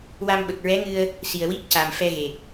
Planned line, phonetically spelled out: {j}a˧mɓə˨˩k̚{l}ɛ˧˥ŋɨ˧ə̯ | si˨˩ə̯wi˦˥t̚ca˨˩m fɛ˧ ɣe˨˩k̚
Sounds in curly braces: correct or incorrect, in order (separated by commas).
incorrect, incorrect